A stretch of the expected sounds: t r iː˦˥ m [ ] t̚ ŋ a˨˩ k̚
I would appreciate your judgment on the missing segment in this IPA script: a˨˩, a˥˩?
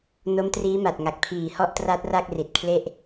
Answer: a˨˩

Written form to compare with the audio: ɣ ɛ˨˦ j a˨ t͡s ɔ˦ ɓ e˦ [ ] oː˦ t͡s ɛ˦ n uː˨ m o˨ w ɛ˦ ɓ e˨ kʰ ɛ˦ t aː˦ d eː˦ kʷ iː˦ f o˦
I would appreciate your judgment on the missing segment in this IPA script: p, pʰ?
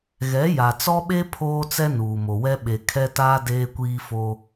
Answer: pʰ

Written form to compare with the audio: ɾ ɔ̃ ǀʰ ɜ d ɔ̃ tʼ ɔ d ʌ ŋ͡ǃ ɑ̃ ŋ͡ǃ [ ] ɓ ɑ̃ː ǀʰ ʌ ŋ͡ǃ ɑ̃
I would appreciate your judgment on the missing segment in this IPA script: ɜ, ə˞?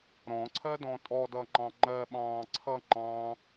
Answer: ɜ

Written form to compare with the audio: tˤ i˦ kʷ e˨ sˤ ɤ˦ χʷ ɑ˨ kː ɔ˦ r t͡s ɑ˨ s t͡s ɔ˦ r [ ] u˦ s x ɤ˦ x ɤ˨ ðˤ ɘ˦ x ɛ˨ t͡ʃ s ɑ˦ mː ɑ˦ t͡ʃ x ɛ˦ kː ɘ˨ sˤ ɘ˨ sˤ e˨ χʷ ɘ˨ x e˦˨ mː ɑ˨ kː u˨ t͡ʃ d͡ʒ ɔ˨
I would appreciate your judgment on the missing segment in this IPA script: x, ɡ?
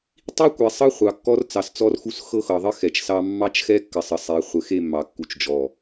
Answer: x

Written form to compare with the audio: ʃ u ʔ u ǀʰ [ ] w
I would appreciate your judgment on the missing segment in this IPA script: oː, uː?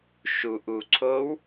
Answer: oː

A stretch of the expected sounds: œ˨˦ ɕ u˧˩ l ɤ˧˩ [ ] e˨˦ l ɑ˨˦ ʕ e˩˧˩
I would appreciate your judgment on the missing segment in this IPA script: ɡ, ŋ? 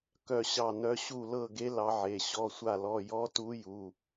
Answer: ɡ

